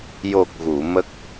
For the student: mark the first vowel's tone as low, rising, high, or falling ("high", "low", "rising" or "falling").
low